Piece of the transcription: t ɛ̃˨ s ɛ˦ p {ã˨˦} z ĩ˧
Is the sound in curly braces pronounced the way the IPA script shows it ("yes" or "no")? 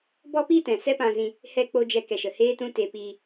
no